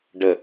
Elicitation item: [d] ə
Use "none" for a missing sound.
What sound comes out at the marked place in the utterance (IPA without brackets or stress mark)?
ɖ